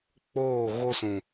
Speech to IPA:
k͡p oː˦˨ ɣ o˦ s ũ˨

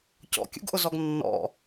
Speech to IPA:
c ɔ̰ kʲ ṵ ɡ ʔ ʊ z ɔ ɡ nː ɔ̰

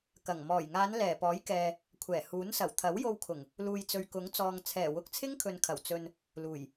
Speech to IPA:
k ɐ˨˩ ŋ m ɔː˨˩ j ŋ aː˨˧ n l ɛː˨˩ p ɔː˨˥ j k ɛː˨ | kʷʰ ɛː˨˩ h uː˨˥ n s ɐ˨˩ w t̪ʰ ɐ˨˥ w j o˧ w kʰ ʊ˨˩ ŋ | l uː˨ j t͡s ɵ˨ ɥ k ʊ˨˥ ŋ t͡s ɔː˨ ŋ t͡sʰ ɛː˨˩ w ʊ˨˥ k̚ t͡sʰ ɪ˥ ŋ kʰ ɵ˨ n kʰ ɐ˨˩ w t͡s ɵ˨ n | l uː˨˩ j

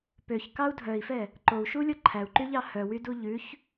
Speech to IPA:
p ø ç k ɑ u̯ dʱ œ i̯ f ɛ | ǃ o u̯ ʃ u lʲ ɔ ǃʰ æ u̯ ǃ y ʎ ɑ h œ w y d u ʎ ʉ ç

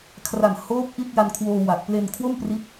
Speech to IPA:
kʰ r a˨˩ n h oː˦˥ p̚ ʔ i˥˩ t̚ j a˧ n kʰ w oː˧ w a˨˩ k̚ p l e˧ n kʰ w o˥˩ m p r i˦˥ t̚

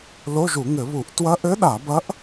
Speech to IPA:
l o˧˥˧ ʒ u˧˩˧ ŋ ɘ˧˩˧ β u˧˩˧ ʔ t w ɐ˧˥ ʔ ɘ˧˥ ɗ a˧˩˧ b ɐ˧˥ ʔ

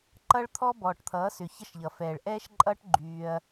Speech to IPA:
ǃ ʌ˦ ɭ t̪ʰ ɔ˦ b ɔː˨ ʈ t̪ʰ ʌː˨˦ s ʏ˨ ç ə˦ ʃ ʎ ʌ˨ f ɛː˨ ɭ ʔ ɛː˦ ʃ ǃʼ ʌː˦ ʈ ɡ͡ǃ yː˧ ɐ̯

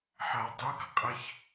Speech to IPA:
ħ a dˤ o ɡ ʌ qʼ ʌ ç

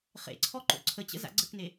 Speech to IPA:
χ ḛ ǀʰ ɔ ǃ o̰ ǀʰ ə t͡ɕ ə̰ z a̰ ɡ͡ǀ ə k n e

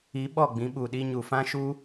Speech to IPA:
i˨˦ ɓ ɔ˦˨ ɡ͡b ĩ˨˦ ɓ u˨ ɗ i˧ ɲ u˨ f ã˦ ʃ u˦

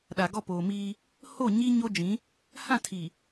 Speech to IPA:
ɗ a˨ ɡ ɔ˦˨ p oː˨ m iː˦ | h o˦˨ ɲ i˦ ɲ o˦ d͡ʒ ĩ˨˦ | h ã˦˨ tʰ iː˨

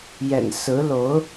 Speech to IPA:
j ɛ̰˨˩ n s ɹ̩˧˥ l o˧˥ ʊ̯

